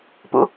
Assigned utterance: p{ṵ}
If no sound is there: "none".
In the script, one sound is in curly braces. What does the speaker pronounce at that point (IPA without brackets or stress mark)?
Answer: ṵ